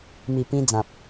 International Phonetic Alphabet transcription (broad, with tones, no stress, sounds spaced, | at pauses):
m i˨˩ p ĩ˧ d͡z ã˨ p̚